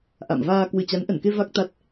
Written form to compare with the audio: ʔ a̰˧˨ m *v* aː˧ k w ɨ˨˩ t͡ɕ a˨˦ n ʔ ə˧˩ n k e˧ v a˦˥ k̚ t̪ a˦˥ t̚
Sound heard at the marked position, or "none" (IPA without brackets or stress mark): v